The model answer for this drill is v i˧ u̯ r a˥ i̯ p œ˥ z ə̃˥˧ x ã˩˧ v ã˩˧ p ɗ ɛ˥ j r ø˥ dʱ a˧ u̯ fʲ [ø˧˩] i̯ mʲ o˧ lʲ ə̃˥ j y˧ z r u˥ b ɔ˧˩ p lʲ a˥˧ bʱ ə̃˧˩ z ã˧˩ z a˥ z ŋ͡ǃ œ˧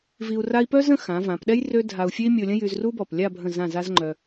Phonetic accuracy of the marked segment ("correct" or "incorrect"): incorrect